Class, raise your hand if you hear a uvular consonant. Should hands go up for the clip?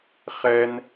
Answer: yes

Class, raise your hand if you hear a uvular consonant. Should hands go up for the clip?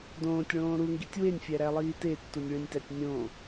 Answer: no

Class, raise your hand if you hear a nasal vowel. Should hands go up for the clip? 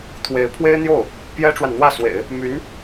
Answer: no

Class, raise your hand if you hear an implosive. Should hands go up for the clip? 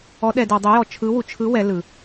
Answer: yes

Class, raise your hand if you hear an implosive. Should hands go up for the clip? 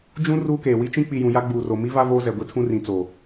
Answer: no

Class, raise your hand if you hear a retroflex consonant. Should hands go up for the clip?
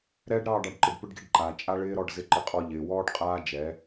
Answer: yes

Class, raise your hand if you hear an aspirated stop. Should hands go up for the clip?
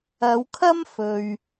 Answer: yes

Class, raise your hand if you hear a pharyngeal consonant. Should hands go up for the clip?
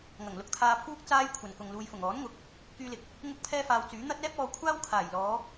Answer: no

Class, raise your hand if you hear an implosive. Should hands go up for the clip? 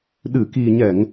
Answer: yes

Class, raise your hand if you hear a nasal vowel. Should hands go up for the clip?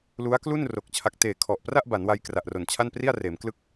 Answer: no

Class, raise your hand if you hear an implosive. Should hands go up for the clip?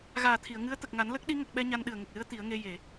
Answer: yes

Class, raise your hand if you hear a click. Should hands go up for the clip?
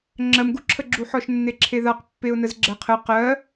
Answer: yes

